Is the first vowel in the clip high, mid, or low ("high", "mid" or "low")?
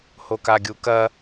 mid